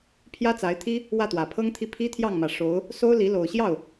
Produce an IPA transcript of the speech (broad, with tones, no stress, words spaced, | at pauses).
pʰjä˥t͡sa˧˥ɪ̯t̪ʰi˥ | wä˥˩t̪wä˨˩pʰɤ˥ŋt̪ʰi˥˩ pʰi˥t̪ʰjɑ˥˩ŋ mä˨˩ʂo˧˥ʊ̯ | so˥ʊ̯li˧˥ lo˨˩ʊ̯ɕjɑ˥˩ʊ̯